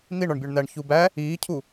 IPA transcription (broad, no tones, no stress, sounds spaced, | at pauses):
n̪ i ɳ ɒ ɳ bʲ o ɳ n̪ æ ɳ ç u b æ | iː cʰ u